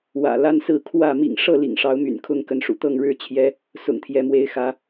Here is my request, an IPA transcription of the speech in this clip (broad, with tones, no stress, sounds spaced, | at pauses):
w ä̰˨˩ l a˦ n s ɹ̩˥˨ kʰ w ä˥˨ m ḭ˨˩ ŋ ʂ ɤ˥˨ l ḭ˨˩ ŋ ʂ ɑ˨˦ ʊ̯ m y̰˨˩ n kʰ ʊ˥˨ ŋ k ə˨˦ n ʂ ṵ˨˩ t̪ ɤ˥˨ ŋ ɻ ɻ̩˥˨ t͡ɕʰ j ɛ˦ | s ʊ̰˨˩ ŋ t̪ʰ j ɛ˨˦ m w e˨˦ ɪ̯ x ä˨˦